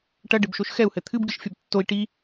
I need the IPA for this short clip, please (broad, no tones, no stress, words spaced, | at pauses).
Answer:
ʈɐɖɘbʃoʃ xɛu̯hɘ t̪ʰɨbɡɨʃfʲɐb tːoi̯ ʈi